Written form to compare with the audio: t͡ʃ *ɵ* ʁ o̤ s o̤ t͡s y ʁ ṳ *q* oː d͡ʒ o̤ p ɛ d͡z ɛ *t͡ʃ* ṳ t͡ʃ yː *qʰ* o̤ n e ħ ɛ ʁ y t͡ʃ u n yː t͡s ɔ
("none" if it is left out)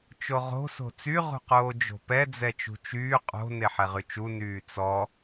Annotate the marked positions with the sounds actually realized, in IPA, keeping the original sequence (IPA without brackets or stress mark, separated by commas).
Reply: o, q, t͡ʃ, qʼ